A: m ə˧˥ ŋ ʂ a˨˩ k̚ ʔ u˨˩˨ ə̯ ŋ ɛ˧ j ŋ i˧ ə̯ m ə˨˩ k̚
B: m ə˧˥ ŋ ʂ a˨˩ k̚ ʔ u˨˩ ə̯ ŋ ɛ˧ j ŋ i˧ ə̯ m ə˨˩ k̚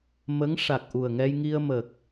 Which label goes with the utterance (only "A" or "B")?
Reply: B